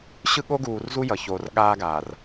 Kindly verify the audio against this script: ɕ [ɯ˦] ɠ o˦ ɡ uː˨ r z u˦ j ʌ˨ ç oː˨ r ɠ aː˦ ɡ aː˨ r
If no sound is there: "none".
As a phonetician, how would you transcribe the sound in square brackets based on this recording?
ɯ˦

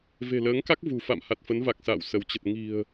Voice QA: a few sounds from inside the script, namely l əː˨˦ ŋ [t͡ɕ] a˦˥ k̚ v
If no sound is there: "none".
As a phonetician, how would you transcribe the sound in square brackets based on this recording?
k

